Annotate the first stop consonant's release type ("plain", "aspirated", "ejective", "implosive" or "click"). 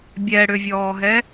plain